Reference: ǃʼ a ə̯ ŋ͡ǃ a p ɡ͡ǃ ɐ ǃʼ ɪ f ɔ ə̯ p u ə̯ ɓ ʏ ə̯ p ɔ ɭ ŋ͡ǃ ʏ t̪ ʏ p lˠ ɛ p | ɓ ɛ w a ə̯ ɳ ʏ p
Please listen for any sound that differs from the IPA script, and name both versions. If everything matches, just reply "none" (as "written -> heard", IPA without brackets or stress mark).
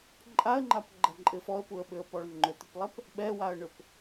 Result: none